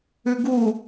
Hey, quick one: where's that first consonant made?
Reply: velum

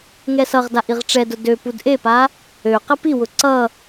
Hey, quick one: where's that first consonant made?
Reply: velum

